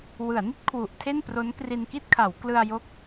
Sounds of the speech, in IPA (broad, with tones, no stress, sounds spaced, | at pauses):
w ɯ˩˦ a̯ n i˥˩ t̚ kʰ w u˨˩ ʔ tʰ e˥˩ n p r o˦˥ n k r i˧ n k i˥˩ t̚ kʰ a˩˦ w k l ɯ˧ a̯ j o˦˥ k̚